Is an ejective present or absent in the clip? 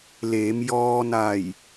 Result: absent